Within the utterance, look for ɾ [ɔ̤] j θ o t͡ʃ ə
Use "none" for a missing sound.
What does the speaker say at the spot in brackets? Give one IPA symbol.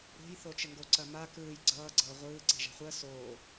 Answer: o̤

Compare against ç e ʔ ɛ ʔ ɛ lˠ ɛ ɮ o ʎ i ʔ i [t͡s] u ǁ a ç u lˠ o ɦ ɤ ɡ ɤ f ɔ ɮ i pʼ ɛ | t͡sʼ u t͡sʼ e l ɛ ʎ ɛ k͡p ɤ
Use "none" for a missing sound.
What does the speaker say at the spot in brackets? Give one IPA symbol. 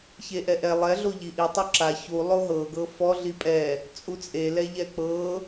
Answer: tˤ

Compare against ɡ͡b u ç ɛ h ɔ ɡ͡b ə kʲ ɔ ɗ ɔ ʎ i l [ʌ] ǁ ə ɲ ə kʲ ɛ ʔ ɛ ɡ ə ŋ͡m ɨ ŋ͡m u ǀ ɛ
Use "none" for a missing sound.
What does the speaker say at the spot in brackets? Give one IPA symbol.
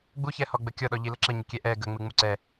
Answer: ə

